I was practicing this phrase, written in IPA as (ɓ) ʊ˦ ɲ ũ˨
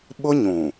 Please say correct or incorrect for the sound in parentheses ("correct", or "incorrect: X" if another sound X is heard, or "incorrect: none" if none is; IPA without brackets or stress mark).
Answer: correct